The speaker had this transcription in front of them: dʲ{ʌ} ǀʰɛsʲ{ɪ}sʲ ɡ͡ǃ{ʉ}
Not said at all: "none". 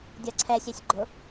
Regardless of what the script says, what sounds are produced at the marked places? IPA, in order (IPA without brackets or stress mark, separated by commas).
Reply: ʌ, ɛ, ʊ